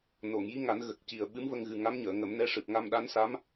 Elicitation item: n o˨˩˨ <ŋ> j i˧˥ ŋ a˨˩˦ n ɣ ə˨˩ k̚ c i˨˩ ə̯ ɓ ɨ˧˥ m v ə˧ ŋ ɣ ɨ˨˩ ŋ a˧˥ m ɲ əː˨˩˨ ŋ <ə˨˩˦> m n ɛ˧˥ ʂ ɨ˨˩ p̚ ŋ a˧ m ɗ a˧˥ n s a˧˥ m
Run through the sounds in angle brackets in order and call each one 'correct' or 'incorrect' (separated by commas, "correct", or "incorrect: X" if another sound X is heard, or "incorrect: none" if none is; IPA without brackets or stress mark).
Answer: correct, correct